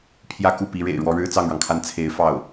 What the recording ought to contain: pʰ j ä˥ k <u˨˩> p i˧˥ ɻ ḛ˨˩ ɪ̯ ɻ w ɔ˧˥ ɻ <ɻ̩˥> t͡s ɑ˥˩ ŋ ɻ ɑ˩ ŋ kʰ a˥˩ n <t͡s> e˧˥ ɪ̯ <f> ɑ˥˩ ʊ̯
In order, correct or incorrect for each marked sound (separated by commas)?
incorrect, correct, incorrect, correct